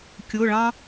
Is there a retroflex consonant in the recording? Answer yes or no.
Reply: yes